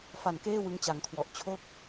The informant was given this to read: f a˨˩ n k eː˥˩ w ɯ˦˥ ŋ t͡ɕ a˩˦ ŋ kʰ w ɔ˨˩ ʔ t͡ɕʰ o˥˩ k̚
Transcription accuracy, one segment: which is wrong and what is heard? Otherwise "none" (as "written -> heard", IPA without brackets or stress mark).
none